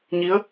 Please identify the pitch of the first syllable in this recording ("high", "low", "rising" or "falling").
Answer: rising